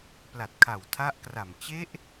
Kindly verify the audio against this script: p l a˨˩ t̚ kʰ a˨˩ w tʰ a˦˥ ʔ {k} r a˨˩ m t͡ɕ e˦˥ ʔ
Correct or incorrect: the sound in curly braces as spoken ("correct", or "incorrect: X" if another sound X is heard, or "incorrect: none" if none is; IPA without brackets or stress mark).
correct